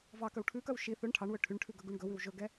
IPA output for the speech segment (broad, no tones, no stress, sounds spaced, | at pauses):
v ɑ k œ w ʈʰ ʉ k œ w ʃ i θ ɵ ɳ ʈʰ ɑ ɳ w ɵ ʈʰ y ɳ ʈʰ ʉ ɡ ɵ ɡ u ɳ ɡ ɵ w ʉ w ʒ ɵ ɡ ɛ